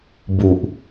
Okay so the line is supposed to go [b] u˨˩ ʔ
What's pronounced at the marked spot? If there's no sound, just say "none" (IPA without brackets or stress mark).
b